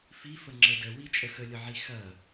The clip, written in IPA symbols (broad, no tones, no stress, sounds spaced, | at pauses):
f i f ə ŋ͡ǁ ə d ə w i t͡ʃʼ ə x ə lʲ ə ʕ i x ɐ